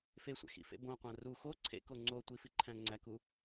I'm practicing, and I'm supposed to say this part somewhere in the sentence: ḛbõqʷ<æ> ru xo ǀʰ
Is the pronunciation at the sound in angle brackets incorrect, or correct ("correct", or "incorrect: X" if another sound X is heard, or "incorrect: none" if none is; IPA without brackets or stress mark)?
incorrect: æ̃